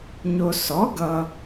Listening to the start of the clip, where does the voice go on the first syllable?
low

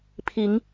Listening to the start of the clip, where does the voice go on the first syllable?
rising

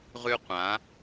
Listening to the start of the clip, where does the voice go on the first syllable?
high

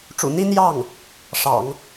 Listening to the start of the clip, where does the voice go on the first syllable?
low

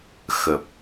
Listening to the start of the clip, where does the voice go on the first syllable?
low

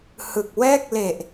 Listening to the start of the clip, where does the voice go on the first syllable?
low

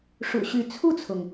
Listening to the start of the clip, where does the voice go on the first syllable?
low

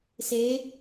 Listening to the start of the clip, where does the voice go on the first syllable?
rising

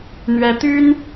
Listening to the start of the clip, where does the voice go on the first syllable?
high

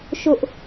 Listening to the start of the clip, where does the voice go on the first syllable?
high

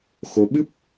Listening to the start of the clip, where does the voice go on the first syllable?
rising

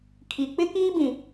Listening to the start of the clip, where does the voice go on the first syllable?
low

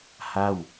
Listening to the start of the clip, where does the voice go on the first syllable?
falling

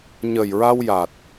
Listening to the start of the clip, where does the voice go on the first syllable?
low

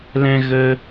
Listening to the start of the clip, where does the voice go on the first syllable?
high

